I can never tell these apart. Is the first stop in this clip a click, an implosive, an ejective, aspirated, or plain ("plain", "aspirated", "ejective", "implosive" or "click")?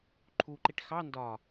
click